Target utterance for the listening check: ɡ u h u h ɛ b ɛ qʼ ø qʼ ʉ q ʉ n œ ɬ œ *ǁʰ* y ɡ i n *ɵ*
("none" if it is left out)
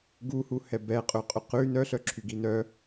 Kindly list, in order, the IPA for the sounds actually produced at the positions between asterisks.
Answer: ǁʰ, œ

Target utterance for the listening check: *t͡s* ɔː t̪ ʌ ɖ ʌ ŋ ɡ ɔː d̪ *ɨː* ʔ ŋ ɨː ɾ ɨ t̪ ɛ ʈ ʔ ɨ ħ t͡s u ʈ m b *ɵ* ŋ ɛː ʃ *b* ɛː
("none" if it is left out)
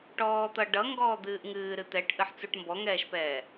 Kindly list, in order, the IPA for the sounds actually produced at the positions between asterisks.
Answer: ʈ, ɨː, ɔ, p

